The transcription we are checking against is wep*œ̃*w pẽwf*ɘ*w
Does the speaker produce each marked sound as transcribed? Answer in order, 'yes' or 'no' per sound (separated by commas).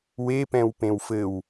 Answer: no, yes